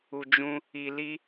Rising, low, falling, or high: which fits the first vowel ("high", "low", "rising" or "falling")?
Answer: low